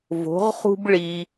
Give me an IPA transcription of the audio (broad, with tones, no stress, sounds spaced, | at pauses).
v o̤˧˥ ʁ χ ṳ˥ b ɭ i˧